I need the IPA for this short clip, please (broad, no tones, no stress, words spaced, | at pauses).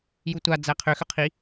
jutʷa d͡zæqʰʏ xʏqʰi